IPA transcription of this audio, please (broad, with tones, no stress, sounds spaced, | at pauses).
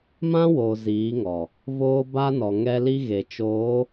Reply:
m ã˦ w o˨ z iː˨˦ ŋ ɔ˨ | v oː˦ b a˦ n ɔ˨ ŋ ɛ˦ l i˦ ɣ e˨ t͡ʃ oː˨˦